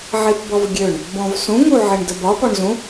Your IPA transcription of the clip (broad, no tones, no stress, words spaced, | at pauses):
ʕipbɔvɡʲøɳ | bɔ̃vsũŋuʕɪɳ dəbɒ pɔɳzũ